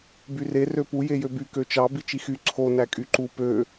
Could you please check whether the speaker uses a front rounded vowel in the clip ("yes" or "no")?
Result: yes